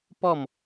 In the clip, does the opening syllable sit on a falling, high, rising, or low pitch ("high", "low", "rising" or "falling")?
falling